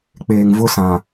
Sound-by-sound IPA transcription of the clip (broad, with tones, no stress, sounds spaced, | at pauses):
k͡p eː˨ ŋ v ʊ˦ s ã˨